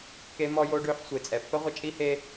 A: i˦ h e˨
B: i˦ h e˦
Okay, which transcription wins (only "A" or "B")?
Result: B